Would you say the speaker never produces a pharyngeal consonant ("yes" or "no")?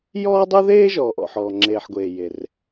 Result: no